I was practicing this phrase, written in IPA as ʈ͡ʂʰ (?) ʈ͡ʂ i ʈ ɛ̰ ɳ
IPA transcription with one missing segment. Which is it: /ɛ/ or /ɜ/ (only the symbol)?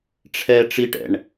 ɛ